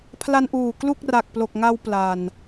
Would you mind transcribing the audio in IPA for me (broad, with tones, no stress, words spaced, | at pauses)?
pʰla˧nʔuː˨˩ klu˥˩k̚ ra˨˩k̚plo˨˩k̚ŋa˧w pla˨˩n